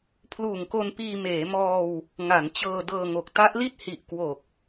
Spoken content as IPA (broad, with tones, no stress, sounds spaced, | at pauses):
pʰ l uː˨˩ ŋ k o˧ n p iː˧ m eː˩˦ m ɔː˧ w | ŋ a˩˦ n t͡ɕ ɤː˧ d ɤː˧ ŋ o˨˩ k̚ t a˦˥ ʔ l i˥˩ t̚ h i˨˩ ʔ k w o˨˩ k̚